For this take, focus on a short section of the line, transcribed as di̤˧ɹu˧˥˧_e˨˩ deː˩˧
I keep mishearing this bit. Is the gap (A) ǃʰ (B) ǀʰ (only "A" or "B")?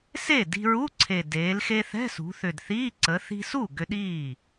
B